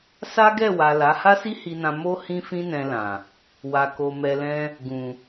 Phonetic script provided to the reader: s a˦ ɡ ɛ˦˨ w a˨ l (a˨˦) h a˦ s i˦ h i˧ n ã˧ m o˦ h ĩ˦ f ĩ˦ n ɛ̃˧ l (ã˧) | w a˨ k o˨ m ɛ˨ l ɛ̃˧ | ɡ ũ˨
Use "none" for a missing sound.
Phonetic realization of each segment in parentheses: a˨˦, ã˨

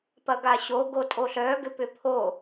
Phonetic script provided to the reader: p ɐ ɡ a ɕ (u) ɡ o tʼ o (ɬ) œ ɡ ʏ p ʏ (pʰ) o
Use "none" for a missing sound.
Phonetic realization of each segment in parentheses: o, ɬ, pʰ

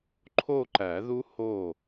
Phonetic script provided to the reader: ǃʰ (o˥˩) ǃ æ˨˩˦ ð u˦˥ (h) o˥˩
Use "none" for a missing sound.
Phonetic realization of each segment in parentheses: o˥˧, h

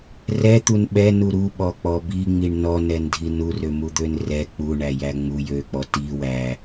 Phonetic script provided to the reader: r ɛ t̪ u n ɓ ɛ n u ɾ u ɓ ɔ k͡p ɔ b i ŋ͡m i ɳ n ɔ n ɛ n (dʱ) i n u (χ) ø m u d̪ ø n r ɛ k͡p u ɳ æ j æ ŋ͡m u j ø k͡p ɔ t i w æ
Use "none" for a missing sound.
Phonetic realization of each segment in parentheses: dʱ, r

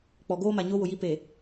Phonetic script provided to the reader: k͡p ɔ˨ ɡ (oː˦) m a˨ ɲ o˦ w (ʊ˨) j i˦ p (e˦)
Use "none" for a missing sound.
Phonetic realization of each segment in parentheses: oː˦, ʊ˨, e˨

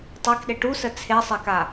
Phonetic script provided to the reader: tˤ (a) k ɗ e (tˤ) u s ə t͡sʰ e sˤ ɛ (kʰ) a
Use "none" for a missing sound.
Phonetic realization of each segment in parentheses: a, ʈ, k

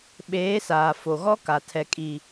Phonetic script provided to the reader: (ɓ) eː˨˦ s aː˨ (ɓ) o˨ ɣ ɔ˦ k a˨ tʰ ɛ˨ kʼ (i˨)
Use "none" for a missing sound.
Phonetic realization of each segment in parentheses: ɓ, f, i˨

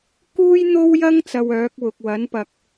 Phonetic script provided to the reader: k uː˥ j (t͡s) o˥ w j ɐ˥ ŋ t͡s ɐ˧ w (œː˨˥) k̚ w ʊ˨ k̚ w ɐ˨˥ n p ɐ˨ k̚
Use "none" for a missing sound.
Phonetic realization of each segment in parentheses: n̪, œː˨˥

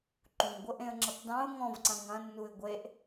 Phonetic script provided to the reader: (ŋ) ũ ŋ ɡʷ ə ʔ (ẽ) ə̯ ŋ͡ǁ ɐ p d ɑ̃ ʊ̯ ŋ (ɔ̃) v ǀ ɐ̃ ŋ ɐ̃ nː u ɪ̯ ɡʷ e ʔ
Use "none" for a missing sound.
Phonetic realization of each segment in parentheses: ǃ, ẽ, ɔ̃

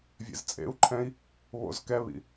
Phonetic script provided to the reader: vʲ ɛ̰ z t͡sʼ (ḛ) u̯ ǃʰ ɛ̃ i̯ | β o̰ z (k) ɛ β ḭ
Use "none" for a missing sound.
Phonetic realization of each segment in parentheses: ḛ, k

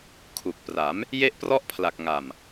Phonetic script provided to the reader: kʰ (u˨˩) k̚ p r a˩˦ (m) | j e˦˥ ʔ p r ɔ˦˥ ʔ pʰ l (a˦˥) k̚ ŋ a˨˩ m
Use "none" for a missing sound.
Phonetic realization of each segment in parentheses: u˨˩, m, a˨˩

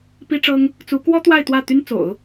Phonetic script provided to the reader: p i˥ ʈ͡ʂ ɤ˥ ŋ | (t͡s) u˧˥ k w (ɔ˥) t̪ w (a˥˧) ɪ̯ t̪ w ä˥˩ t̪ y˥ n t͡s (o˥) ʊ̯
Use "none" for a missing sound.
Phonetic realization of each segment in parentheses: t͡s, ɔ˥, a˥˧, o̰˨˩˦

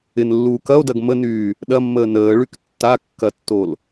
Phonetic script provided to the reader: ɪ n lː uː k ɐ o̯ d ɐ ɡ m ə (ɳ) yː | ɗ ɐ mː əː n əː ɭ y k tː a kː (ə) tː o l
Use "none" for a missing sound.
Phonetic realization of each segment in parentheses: n, ɐ

